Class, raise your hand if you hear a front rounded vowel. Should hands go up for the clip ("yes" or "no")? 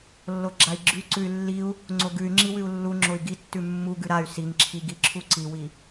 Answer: yes